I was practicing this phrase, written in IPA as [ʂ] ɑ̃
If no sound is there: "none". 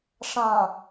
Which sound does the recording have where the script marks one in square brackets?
ʂ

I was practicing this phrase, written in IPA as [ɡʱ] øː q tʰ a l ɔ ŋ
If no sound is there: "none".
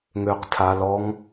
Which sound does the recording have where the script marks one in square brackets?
ŋ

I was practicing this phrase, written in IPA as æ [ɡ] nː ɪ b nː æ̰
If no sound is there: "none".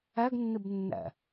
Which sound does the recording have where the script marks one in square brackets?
ɡ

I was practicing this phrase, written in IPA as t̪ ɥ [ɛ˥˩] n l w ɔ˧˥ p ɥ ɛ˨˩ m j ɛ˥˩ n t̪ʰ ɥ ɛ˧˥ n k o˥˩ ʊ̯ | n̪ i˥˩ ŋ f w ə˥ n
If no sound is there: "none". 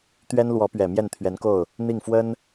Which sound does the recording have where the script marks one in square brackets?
ɛ˥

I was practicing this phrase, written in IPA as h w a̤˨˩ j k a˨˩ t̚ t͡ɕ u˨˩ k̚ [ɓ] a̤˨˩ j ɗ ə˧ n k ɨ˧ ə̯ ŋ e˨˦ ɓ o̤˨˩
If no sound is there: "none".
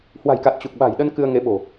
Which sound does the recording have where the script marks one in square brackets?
ɓ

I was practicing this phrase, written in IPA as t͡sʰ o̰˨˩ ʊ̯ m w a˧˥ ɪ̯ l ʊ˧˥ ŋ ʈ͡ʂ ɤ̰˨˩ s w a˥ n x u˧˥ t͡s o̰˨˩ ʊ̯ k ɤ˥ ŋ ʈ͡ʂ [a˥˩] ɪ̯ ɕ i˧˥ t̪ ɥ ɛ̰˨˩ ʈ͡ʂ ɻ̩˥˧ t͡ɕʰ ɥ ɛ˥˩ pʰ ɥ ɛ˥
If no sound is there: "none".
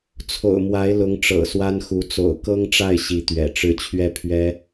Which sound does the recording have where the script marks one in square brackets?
a˥˩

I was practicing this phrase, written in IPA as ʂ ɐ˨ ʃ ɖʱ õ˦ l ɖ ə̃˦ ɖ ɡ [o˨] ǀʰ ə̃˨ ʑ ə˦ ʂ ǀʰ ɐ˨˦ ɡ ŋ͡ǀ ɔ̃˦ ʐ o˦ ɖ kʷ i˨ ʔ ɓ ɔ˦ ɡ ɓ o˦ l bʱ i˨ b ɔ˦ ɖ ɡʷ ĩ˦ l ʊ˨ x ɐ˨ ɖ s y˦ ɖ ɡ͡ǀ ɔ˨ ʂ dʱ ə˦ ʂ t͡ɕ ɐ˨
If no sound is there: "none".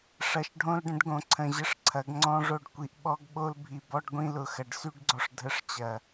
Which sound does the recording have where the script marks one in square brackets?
õ˨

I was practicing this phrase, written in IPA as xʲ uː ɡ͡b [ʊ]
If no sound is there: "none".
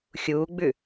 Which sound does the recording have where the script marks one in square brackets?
ʉ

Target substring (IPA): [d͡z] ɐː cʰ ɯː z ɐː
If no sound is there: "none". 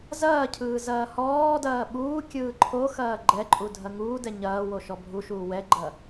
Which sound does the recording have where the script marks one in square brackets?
z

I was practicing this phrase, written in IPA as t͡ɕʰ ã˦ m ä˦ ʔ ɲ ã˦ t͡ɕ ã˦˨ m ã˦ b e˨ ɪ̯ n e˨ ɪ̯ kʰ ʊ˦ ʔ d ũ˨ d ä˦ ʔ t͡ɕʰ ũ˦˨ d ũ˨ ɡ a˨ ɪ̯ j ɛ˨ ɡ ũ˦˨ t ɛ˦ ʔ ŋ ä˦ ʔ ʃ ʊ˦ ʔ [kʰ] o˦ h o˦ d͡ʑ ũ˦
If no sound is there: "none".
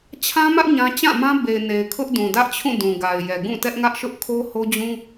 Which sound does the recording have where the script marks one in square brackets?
kʰ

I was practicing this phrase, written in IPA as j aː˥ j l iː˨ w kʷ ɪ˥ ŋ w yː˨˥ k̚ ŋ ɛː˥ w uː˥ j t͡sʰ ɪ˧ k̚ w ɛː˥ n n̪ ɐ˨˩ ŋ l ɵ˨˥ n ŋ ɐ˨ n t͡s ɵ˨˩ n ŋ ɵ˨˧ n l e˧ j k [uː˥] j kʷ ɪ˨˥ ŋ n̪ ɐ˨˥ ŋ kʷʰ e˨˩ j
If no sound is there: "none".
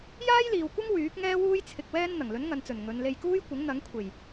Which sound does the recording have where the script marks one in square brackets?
uː˥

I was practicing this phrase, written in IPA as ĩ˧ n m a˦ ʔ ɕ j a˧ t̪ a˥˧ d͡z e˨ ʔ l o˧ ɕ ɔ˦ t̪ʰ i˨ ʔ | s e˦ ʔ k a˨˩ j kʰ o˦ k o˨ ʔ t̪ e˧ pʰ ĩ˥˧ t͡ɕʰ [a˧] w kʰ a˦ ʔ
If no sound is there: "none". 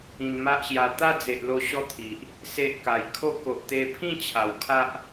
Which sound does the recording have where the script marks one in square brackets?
a˨˩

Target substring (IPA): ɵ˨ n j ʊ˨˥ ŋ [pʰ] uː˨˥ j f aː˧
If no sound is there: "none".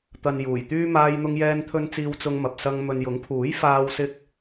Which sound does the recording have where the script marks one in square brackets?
pʰ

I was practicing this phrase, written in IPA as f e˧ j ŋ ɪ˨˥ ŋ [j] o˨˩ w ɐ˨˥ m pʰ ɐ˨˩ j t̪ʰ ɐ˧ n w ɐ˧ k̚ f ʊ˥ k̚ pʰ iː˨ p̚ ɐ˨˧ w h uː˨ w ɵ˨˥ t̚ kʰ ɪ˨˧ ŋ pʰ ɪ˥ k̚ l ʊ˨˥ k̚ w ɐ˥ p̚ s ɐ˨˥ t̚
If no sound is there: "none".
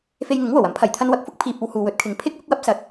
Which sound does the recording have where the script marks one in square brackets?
w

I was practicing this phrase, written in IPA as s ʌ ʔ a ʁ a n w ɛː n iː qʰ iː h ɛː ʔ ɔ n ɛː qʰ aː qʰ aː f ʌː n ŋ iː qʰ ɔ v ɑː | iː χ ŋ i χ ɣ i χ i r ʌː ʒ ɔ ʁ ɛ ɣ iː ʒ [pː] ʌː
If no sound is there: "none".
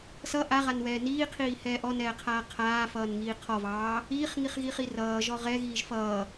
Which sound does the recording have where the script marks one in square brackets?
f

